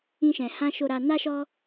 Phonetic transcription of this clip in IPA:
ĩ˧ ʃ ɛ̃˨ h ã˧ ʃ o˨ ɾ a˨ n a˧ ʃ ɔ˧

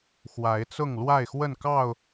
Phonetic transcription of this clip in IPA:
x w a˨˦ ɪ̯ t͡s ʊ˥˨ ŋ l w a˥˨ ɪ̯ x w ə˥˨ n k ɑ˥˨ ʊ̯

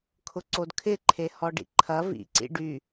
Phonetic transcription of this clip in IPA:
kʰ ʊ ǀ o d kʰ ɪ ǃʰ e h ɔ ɖ ḭ ǃʰ ɐ v ḭ ǀ ḭ ɖ y

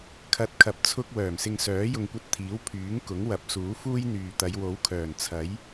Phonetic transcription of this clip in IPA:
kʰ ɐ˧ t̚ kʰ ɐ˧ p̚ t͡sʰ ʊ˥ k̚ w œː˨˩ m s ɪ˧ ŋ s œː˨˥ j ʊ˨ ŋ kʷ ɐ˧ t̚ t̪ʰ iː˨˥ w pʰ yː˨˥ ŋ k ʊ˨˥ ŋ w ɐ˨˥ p̚ s uː˨˥ f uː˥ j n̪ yː˨ t̪ ɐ˨˧ j w o˨˥ w kʰ œː˨˩ n t͡sʰ ɐ˨˥ j

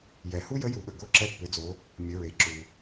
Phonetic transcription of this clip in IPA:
j ɛ˩ h u˥ j ə˧˥ j u˩˧ ɠ ə˩ ɡ o˧˥ ǁ ɛ˧ pː ʏ˩˧ d͡z o˩˧ | mʲ ə˩˧ ɹ e˩ ǁ u˩

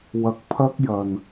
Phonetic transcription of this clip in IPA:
w ɐ˧ k̚ pʰ ɐ˥ k̚ j ɐ˧ n

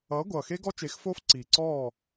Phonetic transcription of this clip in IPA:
ʌː˨˥ ɡʷ ʌː˨˩ x e˦˥ ɡ ɔ˦˥ t͡ʃ e˨˥ x f oː˦˥ f ǀ iː˨˩ ǀ ɔː˥˨

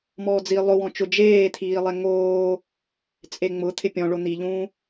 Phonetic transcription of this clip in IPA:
m ɔː d͡z i lˠ ʊ w ɔ̃ t͡ʃ ʊ d͡ʒ eː t̪ʰ iː lˠ ɛ ŋ oː | t͡sʼ e ŋ͡m ʊ t̪ʰ ɪ pʲ ɔ̃ ɭ o n̪ i ʎ ũː

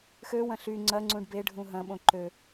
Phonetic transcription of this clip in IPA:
x ø w ɐ̃ ɬ y ŋ͡ǀ ɐ ŋ͡ǀ ũ ɖ b e ɖʱ ũ ɦ ɐ̃ ɓ õ ǃ ø

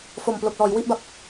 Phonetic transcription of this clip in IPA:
f o˨˩ m p l o˨˩ k̚ l ɔː˩˦ j w i˥˩ ʔ b a˦˥ p̚

